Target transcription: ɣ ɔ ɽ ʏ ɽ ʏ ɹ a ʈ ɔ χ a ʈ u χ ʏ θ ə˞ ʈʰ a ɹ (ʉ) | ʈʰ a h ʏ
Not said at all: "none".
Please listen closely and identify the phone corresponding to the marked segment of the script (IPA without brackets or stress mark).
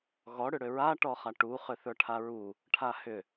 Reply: u